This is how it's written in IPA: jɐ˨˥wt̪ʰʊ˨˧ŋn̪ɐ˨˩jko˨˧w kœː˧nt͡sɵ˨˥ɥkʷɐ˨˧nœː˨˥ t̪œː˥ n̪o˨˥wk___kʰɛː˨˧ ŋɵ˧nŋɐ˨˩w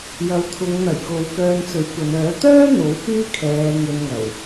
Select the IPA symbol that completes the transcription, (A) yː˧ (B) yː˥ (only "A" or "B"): B